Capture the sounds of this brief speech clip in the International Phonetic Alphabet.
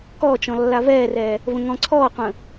kɔːt͡ʃɔ̃ lːavɛːrɛː | və̃ŋɔ̃ǀʰɔːqʷə̃ː

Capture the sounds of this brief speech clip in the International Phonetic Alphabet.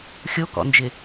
xʲokɔ̰nd͡ʒɪ

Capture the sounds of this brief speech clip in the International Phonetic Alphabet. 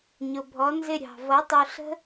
ɲʊ˩bʱɔ˩˥nzɪ˦˨ ɾʲɑ̤˩ vʌ˩˥tˤu˩ɬə̤˦˥

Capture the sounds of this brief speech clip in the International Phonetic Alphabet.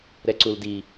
ɾɛǀuldi

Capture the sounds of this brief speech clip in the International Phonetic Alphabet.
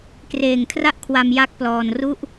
kreː˨˩ŋkʰra˥˩ʔkʰwa˧m ja˦˥k̚plɔː˧nru˥˩ʔ

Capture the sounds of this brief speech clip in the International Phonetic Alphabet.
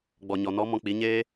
ɡ͡bɔ˨ɲɔ˨nɔ˨˦ mɔ̃˧k͡pi˨˦ɲeː˦

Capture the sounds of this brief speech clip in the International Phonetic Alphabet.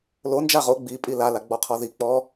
lo nd͡ʒaʁo ɡ͡bi pʼila laɡ͡bɔqʰɔði k͡pɔ

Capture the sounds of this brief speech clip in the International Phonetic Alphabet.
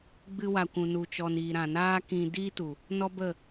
ɡ͡bɨ˧wa˨kʷũ˨ nu˨t͡ʃɔ˨n iː˨ɾã˨ naː˦kĩ˧ diː˦tu˨ | nɔ˦ bə˦˨

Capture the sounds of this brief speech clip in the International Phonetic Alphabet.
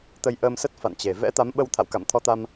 t̪ə˧jʔəː˧msə˦˥t̚ fa̰˧˨nt͡ɕe˨˩ vɛ̰˧˥t̪a˨˦mɓə˧w t̪ʰa̰˧˨wka̰˧˨mt̪ʰɔ˧t̪a˧m

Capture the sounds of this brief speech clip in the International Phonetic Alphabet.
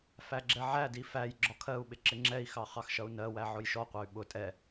fæɡ͡ǁɛʕædi fæj ɡ͡ǁɒkʰɜu̯ɓɪ ǁɪŋ͡ǁɛi̯xɑ χɑxʃʌu̯nɜwæ ʕʊjʃɔqʷæy̯ ɓʊ tʼɛ

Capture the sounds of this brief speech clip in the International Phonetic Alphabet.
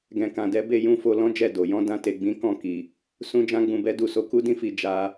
ɡɛ̃˨kã˨dɛ˨˦ be˦˨jũ˧ fo˧lɔ̃˦d͡ʒɛ˦˨ do˨ jɔ̃˨˦dã˧ te˨ɡ͡bĩ˨˦kɔ̃˦˨ki˨ | sũ˧d͡ʒã˧ɡ͡bũ˨bɛ˨˦ du˦˨ so˧ku˦dĩ˦fi˧ d͡ʒa˦

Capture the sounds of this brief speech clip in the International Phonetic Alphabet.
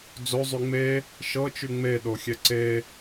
d͡zozˤy ŋ͡me | ʃɤt͡ʃy ŋ͡meɗoxʲɛ ǀe

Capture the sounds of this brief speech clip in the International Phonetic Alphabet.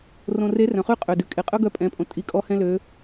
rõ˧ re˧˥ rœ̃˩χy˥qʼø˩ dʉ˩ kʼe˩˧qʼœ˥ ɡœ˧˥pʼɛ̃˩˧pʼõ˩ tʼi˩˧kʼɔ˧ hɛ̃˧lø˩˧

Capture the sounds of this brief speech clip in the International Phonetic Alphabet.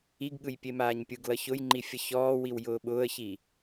iɡɠɯj pʲemaːɲpʲɯɡlʌ çʊjŋ͡ǃi fʲʌçɔːwiw jʊːɓʊːə̯çi

